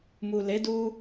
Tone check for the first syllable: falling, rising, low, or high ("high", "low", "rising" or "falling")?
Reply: low